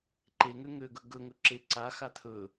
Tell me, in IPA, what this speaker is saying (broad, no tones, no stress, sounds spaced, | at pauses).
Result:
ǃ e ŋ ø ŋ ø ɡ ɵ ɡ ɵ ŋ ɵ ǁ e ǀ a x a t̪ʰ ɵ